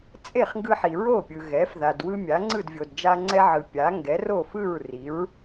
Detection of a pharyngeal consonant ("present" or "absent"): present